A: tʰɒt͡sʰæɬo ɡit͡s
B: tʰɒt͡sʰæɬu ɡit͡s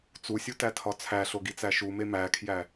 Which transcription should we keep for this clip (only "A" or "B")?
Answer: A